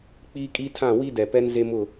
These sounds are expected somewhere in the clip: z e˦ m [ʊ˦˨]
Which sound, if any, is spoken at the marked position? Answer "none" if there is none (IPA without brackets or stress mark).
ʊ˦˨